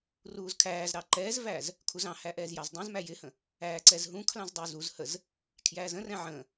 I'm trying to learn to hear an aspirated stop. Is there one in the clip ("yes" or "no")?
yes